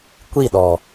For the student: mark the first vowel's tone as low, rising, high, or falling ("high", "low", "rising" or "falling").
falling